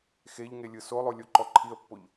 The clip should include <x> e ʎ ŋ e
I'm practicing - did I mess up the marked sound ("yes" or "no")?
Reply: no